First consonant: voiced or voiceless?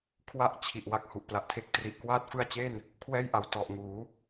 voiceless